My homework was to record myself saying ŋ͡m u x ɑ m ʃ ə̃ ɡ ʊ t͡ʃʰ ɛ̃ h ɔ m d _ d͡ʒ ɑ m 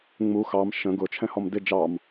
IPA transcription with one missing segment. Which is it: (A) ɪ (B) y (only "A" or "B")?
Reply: A